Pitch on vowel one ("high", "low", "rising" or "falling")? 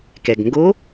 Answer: low